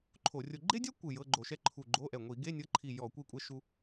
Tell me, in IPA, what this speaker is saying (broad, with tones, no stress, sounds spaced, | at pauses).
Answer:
ǃʰ o˧˩˧ rʲ o˧ ɡ͡ǃ e˥ dʲ a˥ kʷ ɯ˧˩ j ɤ˧˥˧ ɡ͡ǃ o˧˩˧ ʃ ɛ˥ ǃʰ u˧˩ ɡ͡ǃ o˧˥˧ ʔ ɛ˧˩ ŋʷ i˧˩˧ ɡ e˧˥˧ nʲ ɤ˧˥˧ ǃʰ i˧˩ j ɔ˧˩˧ kʷ i˧ kʷʼ ɛ˧ ʃ u˧